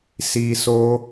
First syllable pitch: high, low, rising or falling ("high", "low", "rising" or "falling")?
high